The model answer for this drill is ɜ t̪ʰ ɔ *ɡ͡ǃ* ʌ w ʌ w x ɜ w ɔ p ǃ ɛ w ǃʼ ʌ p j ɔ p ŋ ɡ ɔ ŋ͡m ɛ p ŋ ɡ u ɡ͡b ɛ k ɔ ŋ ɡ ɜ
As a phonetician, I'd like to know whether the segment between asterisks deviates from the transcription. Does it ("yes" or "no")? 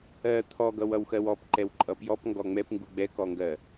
yes